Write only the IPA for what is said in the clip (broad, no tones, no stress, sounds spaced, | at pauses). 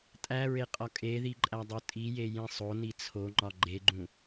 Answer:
tʼ æ ɹ e qʼ ɒ kʼ e ð i ǃʼ æ dˤ o tʼ i j e j ĩ sˤ o n i t͡sʰ o ŋ͡ǃ ɒ ɡ͡ǃ e ɡ͡ǃ ũ